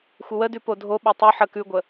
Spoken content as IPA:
xʷ ə w ə d ʉ p o dʱ o ɓ o tˤ ʉ ħ ə k ʉ ɡʷ ə

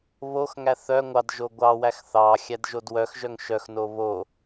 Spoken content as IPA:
β o x ŋ æ θ œ ŋʷ ɑ d ʒ o ɡʷ ɑ w æ x θ ɑ xʲ æ d ʒ o d w œ x ʒ œ ŋ ʃ œ x n o β o

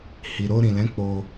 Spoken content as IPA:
h i˨ ɾ o˧ ɾ ĩ˨ l ɛ̃˨˦ k͡p o˧

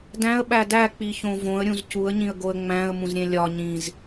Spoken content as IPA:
d æ̃ ə̯ ɓ æ d æ k͡p i ç õ v õ ə̯ ɾʲ ũ z c u ə̯ ɲ ĩ ə̯ ɡ o ə̯ ŋ͡m æ̃ ə̯ m ũ z ɾʲ ẽ lʲ ɒ ɲ ĩ z

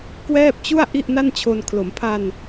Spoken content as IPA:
k w ɛː˥˩ p̚ t͡ɕ u˥˩ a̯ ʔ i˥˩ ʔ n a˥˩ n t͡ɕʰ o˧ n kʰ l o˩˦ m pʰ a˧ n

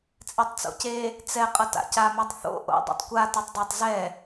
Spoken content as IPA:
t͡sʼ ɛ tˤ t͡s o̰ c e | t͡s ɛ qʼ ʌ t a̰ c a m i tˤ θ o̰ ʔ o̰ dˤ ḭ tˤ kʷ a t a tˤ dˤ ʌ tˤ z ɛ

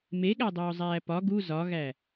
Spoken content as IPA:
m e ɠ æ dˤ oː zˤ æː p ɒ ɡ u z ɒ ɣ æ

